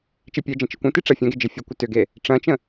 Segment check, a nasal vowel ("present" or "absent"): present